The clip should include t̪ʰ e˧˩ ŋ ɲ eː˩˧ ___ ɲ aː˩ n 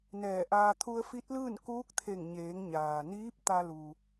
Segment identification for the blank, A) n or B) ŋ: B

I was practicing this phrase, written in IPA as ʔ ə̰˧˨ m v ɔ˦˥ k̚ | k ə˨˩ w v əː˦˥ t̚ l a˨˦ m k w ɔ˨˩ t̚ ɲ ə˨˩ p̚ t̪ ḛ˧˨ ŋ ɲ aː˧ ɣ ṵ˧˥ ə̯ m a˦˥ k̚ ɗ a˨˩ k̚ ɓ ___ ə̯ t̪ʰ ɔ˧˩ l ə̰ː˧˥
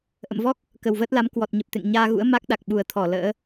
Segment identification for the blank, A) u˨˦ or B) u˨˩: B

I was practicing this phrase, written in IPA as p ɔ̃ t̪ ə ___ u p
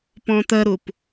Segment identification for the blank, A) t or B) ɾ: B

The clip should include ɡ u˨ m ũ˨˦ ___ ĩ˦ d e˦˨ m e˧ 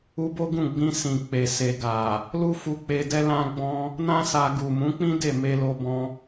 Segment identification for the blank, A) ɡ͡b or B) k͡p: B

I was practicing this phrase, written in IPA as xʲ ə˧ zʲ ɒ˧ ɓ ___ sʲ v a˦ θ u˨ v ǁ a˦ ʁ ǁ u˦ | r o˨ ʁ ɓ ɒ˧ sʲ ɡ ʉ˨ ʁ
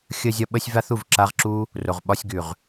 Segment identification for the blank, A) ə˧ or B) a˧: A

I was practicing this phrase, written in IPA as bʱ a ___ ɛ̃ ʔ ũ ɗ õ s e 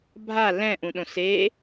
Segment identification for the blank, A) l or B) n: A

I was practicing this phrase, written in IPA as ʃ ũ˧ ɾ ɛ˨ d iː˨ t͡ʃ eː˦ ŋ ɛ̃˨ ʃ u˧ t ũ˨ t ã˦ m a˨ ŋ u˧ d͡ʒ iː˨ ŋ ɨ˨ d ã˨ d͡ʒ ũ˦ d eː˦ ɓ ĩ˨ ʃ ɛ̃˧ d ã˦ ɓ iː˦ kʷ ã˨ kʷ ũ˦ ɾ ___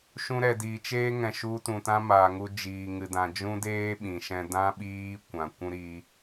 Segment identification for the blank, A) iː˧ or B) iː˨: A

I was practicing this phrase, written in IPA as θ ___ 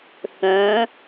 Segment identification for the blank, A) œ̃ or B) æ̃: A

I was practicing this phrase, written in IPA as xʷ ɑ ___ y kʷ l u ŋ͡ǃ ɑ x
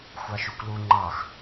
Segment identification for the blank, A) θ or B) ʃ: B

